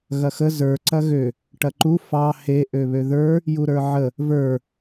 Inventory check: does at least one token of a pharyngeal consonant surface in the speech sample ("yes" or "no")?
yes